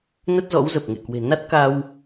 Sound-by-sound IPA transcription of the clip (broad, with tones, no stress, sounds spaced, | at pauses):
n ə˦˥ t̚ z ɔ̰˧˥ w z ə˨˩ p̚ ŋ ḛ˧˨ k w e̤˨˩ n a˦˥ t̚ k a˧ w